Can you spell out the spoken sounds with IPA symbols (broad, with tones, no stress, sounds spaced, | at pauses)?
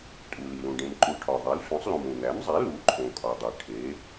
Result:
tʼ u˩ l i˩ l ũ˩ ɖ ẽ˩ m ǃ u˩ ʈʰ ɒ˩ ðˤ i˩˥ l sʷ ẽ˩˥ sˤ l ũ˩ m ũ˩ n̪ æ˩˥ m zˤ e˩˥ l u˩˥ ǃʰ õ˩ kʼ ɒ˩ dˤ e˩ ʈʰ e˩˥